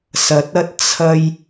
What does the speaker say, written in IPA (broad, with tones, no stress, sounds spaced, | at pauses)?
s ɐ˨˥ t̚ ɐ˥ t̚ t͡sʰ ɐ˧ j